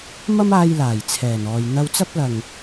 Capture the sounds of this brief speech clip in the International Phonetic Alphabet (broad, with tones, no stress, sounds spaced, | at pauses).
m ɐ˥ m aː˧ j l aː˨˩ j t͡sʰ ɛː˨˩ n ɔː˨ j n̪ ɐ˧ w t͡s ɐ˥ p̚ l ɐ˨ ŋ